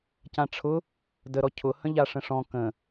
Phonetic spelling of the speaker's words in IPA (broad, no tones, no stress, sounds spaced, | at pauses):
c ã ʈ͡ʂʰ ʊ | d ə ɾ ɔ cʰ ʊ h ə̃ ʎ a ʂ ə̃ ʂ ɔ̃ k ə̃